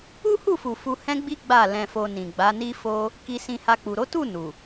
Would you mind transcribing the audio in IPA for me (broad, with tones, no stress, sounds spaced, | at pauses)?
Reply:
u˦ h u˦˨ f u˨ f u˧ h ɛ̃˦ ɡ͡b i˦ ɡ͡b a˦˨ l ɛ̃˧ f o˧ n ĩ˨ ɡ͡b a˨˦ n i˦ f o˦ | k i˧ s ĩ˧ h a˧ k͡p u˨ ɾ o˨˦ t u˦˨ n u˨